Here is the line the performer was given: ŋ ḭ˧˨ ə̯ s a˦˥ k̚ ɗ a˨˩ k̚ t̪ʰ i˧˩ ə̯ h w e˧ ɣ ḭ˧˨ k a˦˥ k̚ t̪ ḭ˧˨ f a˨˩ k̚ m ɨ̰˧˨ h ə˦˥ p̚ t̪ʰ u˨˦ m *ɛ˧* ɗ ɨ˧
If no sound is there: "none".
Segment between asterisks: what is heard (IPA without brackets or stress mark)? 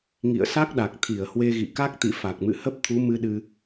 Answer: ɨ˧